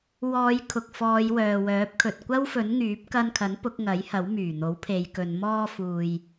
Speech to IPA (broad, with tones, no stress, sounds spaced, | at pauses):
w ɔː˨˧ j kʰ ʊ˨ k̚ f ɔː˨˧ j w œː˨ w œː˨˥ p̚ kʰ ɵ˨ t̚ kʷ ɐ˥ w f ɵ˨˥ n ŋ yː˨˥ p̚ k ɐ˧ n kʰ ɐ˨˥ n p ʊ˨˥ k̚ ŋ ɐ˨˥ j h ɐ˨˥ w m yː˨˩ n̪ o˨˥ w pʰ e˨˧ j k ɵ˨˧ n m ɔː˧ f uː˨ j